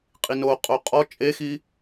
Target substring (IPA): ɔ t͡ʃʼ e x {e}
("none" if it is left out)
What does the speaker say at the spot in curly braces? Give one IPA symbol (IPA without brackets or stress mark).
i